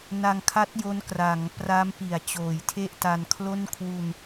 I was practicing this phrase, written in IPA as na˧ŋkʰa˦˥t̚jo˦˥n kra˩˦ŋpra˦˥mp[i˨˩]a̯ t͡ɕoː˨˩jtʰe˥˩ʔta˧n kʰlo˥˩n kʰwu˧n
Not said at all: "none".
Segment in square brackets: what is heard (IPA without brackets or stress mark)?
i˨˩